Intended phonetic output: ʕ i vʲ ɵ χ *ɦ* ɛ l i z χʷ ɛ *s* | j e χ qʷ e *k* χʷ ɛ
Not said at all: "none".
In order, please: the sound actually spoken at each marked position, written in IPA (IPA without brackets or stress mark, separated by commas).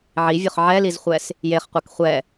ʕ, s, k